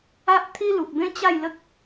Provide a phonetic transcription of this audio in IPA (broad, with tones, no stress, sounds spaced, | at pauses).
a˦ ʔ t̪ʰ i˦ l u˨ k̚ b ẽ˦ t͡ɕ a˥˧ j l ə˦ k̚